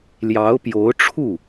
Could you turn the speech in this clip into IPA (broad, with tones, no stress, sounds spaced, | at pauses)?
l j ɑ˧˥ ʊ̯ p j o˧˥ ʊ̯ ʈ͡ʂʰ u˥˩